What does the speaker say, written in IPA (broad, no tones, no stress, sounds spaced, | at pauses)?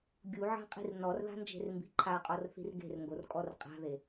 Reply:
ɡʲ u ʕ a̤ qʼ i̤ r n ɔ r ð a̤ n d͡ʒ e̤ r m b i̤ ǃʰ a qʼ ɔ r θ i̤ r ɡ e̤ r ŋ ɡ o r kʼ ɔ r qʼ a̤ ð e